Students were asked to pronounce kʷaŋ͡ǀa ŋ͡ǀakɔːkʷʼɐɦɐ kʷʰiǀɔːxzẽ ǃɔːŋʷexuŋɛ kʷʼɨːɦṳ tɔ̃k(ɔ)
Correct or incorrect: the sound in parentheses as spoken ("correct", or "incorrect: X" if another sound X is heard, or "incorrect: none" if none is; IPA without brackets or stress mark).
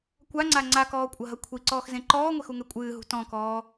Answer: incorrect: ɔː